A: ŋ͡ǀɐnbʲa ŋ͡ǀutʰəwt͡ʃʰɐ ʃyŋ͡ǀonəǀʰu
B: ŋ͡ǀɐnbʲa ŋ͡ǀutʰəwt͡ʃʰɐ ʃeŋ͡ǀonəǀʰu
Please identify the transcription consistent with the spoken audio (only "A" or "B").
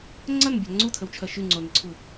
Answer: A